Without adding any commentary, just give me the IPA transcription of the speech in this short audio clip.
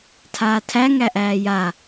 tʰ aː tʰ æ ŋ æ ʔ æː j a

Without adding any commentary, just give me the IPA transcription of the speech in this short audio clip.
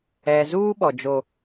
ɛ˨ z uː˦ ɓ ɔ˨ d͡ʒ o˦

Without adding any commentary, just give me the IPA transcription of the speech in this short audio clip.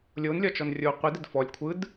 lʲ o n lʲ ɒ t͡ʃ ɔ n rʲ o qʷ i d ɘ d f ɔ lʲ kʷʰ ɯ d

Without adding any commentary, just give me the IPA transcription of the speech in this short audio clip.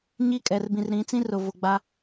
ɲ i˦ kʼ ɛ˨ r b ĩ˨ r ɾ ĩ˨˦ t͡s ĩ˦ r ʊ˨ v ʊ˨ ɡ͡b a˦

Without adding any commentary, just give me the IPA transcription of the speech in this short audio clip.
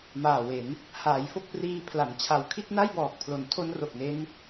m aː˨˩ w e˩˦ n | h aː˩˦ j f o˥˩ k̚ p r iː˧ pʰ l a˩˦ n t͡ɕʰ a˨˩ w kʰ i˥˩ t̚ n a˥˩ j b ɔː˨˩ k̚ pʰ l o˩˦ n tʰ o˦˥ n r o˨˩ k̚ n e˦˥ n

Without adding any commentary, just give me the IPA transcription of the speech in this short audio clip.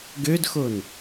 ɡ ø d x o n

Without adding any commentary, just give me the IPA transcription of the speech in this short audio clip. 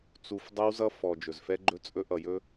t͡s u˨ f dˤ ʌ˦ w z ʌ˦ f ɔ˨ d͡ʒ ɵ˨ z f ɛ˦ ɡ͡ǃ ɵ˦ t͡sʼ ɵ˦ ʔ ʌ˨ j ɵ˦

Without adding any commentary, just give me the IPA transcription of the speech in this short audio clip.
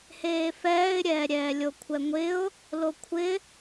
h eː f ɛː ɪ̯ ɾʲ ɛː ɾʲ ɛː lʲ o kʷʰ ɛ ŋʷ ɪ ʊ̯ | l o kʷʰ ɪ

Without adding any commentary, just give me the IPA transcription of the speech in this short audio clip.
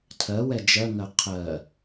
tʰ ɜ w ɛ d͡ʒ ɜ ŋ ɜ qʰ ɜ

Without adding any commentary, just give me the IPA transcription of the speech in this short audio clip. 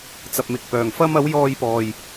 t͡s ɐ˧ p̚ m ɪ˧ k̚ p œː˨ ŋ f ɐ˥ m ɐ˨˥ w j ɔː˧ j p ɔː˨ j

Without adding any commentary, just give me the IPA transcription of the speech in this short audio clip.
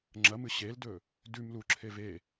ŋ͡ǁ ɐ m ɨ ɕ e l d ɵ | d ʉ m l u ǁʰ e v e

